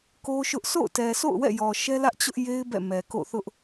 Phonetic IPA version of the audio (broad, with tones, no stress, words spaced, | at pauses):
ko˦ʃʊ˦ʔ sʰo̰˦˨ʊ̯tɛ˨sʰo̰˦˨ʊ̯ wɛ̰˦˨jɔ˨ʃɛ˦lä˦ʔ t͡ɕʊ˦ʔje˦ɪ̯ bɛ̰˦˨mɛ˨ ko̰˦˨θʊ˦ʔ